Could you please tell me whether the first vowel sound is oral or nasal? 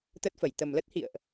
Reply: oral